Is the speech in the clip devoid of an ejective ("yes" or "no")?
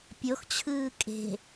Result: no